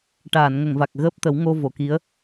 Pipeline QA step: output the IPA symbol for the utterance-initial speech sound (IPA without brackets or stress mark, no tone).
ʈ